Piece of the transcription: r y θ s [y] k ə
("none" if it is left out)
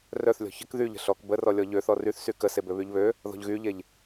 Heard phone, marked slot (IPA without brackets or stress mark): y